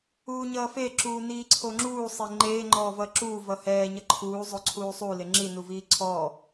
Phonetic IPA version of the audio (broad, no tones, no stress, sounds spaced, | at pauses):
uː ɲ ʌː f e ǁ uː n iː ǀʰ o ŋ͡ǁ uː sˤ e ŋ͡ǃ eː ŋ͡ǃ ɔː v ʌː ǁ uː v ʌ h ɛː ɲ ʌ ǃʰ uː zˤ o ǀʰ uː sˤ u l e ŋ͡ǁ i n u v iː ǀʰ ɔː